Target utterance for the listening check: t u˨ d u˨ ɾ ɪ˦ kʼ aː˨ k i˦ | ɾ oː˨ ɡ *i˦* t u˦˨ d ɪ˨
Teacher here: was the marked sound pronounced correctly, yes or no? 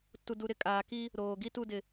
yes